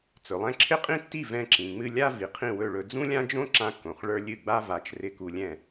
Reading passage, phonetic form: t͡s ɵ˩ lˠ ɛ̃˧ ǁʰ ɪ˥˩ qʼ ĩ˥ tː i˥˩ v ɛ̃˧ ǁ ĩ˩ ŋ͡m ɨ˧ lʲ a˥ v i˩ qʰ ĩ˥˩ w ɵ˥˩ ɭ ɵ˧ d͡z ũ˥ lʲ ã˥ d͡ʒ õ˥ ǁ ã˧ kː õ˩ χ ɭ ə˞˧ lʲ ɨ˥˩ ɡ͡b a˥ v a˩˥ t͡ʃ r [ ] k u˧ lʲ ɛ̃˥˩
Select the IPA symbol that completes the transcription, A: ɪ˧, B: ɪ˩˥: A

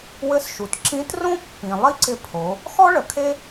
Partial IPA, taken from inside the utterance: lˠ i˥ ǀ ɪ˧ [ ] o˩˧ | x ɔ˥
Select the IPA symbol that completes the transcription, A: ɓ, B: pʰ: B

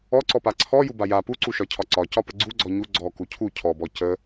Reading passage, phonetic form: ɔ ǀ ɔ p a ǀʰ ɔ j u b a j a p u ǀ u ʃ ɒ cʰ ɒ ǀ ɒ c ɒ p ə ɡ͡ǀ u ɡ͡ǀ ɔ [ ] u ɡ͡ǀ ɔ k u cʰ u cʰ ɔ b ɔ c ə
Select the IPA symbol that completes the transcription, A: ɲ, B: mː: A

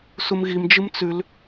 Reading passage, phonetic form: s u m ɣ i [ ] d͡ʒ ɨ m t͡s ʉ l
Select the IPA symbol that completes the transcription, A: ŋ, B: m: B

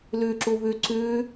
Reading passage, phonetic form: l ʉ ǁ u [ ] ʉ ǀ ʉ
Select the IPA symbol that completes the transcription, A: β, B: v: A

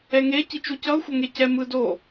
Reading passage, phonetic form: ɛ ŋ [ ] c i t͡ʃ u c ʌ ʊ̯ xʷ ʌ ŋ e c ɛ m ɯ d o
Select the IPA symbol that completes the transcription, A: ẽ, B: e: B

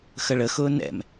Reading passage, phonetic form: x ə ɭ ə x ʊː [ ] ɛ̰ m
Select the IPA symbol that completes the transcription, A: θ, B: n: B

